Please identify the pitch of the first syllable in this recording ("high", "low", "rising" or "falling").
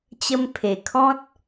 high